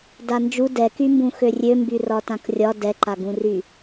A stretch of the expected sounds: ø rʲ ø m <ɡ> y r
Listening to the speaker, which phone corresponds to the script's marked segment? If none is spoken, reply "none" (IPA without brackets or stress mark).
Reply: b